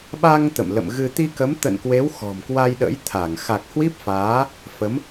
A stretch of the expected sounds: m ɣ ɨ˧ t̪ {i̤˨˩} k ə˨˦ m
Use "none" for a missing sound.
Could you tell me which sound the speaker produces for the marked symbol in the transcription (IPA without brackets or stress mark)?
i˧